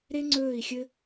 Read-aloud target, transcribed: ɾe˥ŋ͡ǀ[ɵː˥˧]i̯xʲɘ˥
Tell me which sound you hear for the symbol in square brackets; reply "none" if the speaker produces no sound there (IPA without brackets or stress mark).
ɵː˥˧